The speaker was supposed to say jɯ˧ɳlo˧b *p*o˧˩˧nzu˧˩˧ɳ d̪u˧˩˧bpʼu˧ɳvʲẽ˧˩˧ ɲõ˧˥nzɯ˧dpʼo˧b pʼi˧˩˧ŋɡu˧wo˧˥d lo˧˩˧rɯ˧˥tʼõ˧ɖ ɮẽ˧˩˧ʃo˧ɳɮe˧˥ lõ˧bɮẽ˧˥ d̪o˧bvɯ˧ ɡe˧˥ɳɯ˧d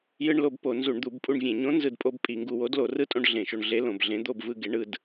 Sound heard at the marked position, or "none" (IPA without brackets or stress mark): p